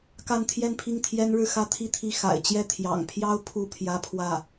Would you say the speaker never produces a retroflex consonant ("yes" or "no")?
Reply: no